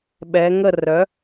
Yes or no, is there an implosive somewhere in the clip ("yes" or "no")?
yes